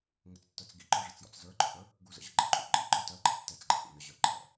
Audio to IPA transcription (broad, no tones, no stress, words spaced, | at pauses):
ŋət͡stːə˞t͡s ɡḭǃɔʐɘt͡sjɔ̰t͡s zə˞ɡ͡ǃɔ̰ʔə˞ | ɡuzə̰ʑə ɡ͡ǃə̰ǃʼṵ ǃʼḭǃɔ tɜǃʼə̰ tːɛt͡sɡ͡ǃɛ̰ʔṵ nəʑə˞ ǃʰɛ̰